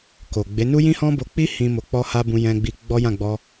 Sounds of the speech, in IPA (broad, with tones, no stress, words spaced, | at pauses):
ko˨ɡ͡be˨˦ nu˦jĩ˦hɔ̃˦ bo˧k͡pi˦ hĩ˧ mo˨k͡pɔ˧ha˧ bũ˧jɛ̃˧ɡ͡bi˧ ɡ͡bɔ˦jã˦˨ɡ͡bɔ˧